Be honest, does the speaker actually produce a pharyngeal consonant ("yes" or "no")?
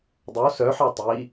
yes